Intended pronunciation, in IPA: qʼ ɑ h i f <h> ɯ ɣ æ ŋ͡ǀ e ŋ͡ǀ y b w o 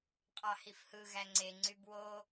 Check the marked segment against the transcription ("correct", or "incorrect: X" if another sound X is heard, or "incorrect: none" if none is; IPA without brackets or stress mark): correct